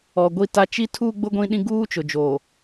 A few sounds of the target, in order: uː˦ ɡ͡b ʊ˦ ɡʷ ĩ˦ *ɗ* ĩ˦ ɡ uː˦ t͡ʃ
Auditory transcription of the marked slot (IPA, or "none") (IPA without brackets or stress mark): ɗ